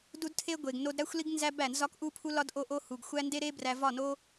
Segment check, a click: absent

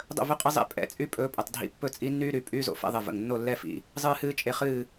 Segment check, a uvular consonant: present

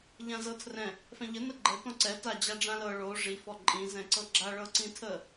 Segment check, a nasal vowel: present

